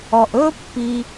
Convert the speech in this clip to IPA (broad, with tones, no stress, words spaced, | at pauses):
ɔ˨ʔɵː˦pːi˧